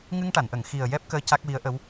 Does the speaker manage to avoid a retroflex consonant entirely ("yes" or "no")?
no